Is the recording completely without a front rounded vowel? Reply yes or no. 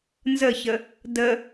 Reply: yes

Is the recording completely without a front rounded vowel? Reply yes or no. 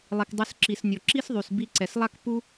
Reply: no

